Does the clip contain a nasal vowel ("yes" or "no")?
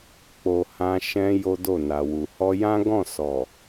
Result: yes